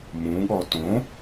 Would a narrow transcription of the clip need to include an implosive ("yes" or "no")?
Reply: yes